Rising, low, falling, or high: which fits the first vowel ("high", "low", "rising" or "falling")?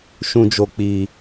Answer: low